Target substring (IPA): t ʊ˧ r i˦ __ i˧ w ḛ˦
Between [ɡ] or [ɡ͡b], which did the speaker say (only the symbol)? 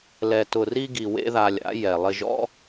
ɡ